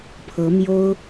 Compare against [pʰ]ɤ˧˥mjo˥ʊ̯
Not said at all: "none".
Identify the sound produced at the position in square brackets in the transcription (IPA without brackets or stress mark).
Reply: pʰ